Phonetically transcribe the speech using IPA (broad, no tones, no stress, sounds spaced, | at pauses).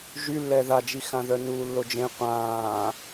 ʒ y lː ɛ ð a d͡ʒ i x ã ð œ n uː lː o d͡ʒ ẽ qʷ ãː